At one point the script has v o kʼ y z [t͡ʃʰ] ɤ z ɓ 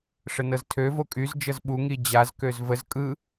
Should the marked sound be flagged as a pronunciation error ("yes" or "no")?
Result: yes